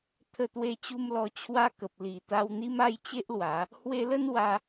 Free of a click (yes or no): yes